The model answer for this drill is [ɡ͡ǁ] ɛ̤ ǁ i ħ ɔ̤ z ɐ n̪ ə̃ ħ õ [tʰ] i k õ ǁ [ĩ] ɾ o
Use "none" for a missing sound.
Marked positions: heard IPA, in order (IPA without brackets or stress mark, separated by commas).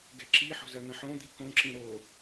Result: ɡ, d̪, ĩ